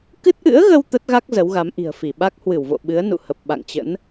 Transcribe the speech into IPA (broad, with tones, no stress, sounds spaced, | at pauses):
k ɨ˦˥ t̚ ʔ ɨ̰˧˥ ə̯ ɣ ə˧ w t̪ ə˦˥ t̚ ɣ a˦˥ k̚ z ə˨˦ w ɣ a˨˦ m ʔ i̤˨˩ ə̯ f i˧˩ ɓ a˦˥ k̚ h w ɨ˧˩ w v o̰˧˨ ɓ ɨ˨˦ ə̯ n ṵ˧˨ h ə˨˩ p̚ ɓ a̰˧˨ ŋ t͡ɕ ə̰˧˥ n